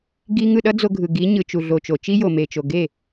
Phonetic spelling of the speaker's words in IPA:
ɡ i˧ ŋ ɯ˦˨ ɗ ʌ˦ d͡z o˧ ɡʱ ɯ˨ ɡ i˨˦ ɲ ɯ˨ t͡ʃ u˨ ɮ o˨ t͡ʃ o˨ t͡ʃ i˦ j o˨ m e˨ t͡ʃ o˨ ɡ e˦˨

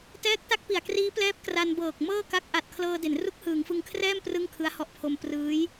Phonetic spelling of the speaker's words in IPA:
t ɛː˦˥ k̚ t a˦˥ k̚ p i˨˩ a̯ k r iː˦˥ p l ɛː˦˥ p̚ k r a˧ n b ɤː˨˩ k̚ m ɤː˥˩ k a˦˥ k̚ ʔ a˨˩ t̚ kʰ l ɤː˧ d e˩˦ n r u˦˥ k̚ h ɯː˩˦ ŋ f ɯ˧ ŋ kʰ r ɛː˥˩ m p r ɯ˥˩ ŋ kʰ ɯ˦˥ a̯ h ɔ˦˥ ʔ pʰ o˧ m p r ɯː˦˥ j

